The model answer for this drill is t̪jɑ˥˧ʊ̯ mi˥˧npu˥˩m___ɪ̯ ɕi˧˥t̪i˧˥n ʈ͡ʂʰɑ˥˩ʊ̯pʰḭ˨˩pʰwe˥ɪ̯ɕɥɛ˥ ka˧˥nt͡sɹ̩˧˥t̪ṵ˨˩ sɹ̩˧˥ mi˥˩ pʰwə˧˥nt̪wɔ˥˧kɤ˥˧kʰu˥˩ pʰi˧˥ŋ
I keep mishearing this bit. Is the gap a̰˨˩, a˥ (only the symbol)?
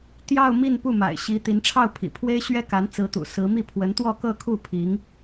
a̰˨˩